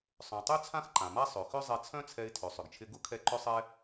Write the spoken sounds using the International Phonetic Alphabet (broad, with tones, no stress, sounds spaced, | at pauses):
sˤ œ̃˩ tˤ y˥ t͡sʰ ã˥ x ǃ ã˩ m a˥ sˤ ø˩ x ʏ˥ zˤ ɛ˧ t͡sʰ œ̃˥ t͡sʰ ɛ˧ ɪ̯ tʰ ø˩ sˤ ʏ˩ ɡ t͡ʃʰ ɪ˧ ɡ ʊ˥ kʰ ɛ˧ ǃ ʏ˥ sˤ ɛ˥